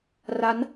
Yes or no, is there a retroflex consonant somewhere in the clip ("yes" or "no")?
no